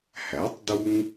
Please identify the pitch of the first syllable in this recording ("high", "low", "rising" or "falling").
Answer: rising